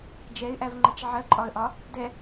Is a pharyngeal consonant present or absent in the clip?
present